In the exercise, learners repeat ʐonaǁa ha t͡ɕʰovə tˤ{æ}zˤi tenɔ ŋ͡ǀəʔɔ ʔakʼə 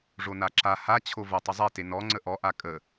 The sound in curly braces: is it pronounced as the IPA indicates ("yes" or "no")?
no